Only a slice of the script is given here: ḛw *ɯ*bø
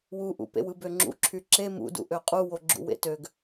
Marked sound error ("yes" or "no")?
no